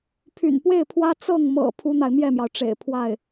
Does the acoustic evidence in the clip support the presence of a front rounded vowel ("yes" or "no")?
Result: yes